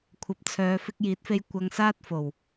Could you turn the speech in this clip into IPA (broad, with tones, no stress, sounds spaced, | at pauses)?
kʷʰ ɐ˨˥ p̚ t͡sʰ œː˨˧ f ɪ˧ k̚ j iː˨˥ t̚ f e˧ j kʷ ɐ˧ ŋ s aː˥ t̚ f o˨˩ w